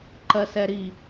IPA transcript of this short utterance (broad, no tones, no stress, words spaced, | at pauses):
ǃɜsɛɾi